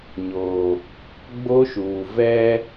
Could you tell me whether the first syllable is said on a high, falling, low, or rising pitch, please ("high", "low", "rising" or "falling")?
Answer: low